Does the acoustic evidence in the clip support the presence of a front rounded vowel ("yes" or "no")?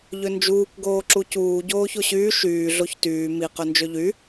yes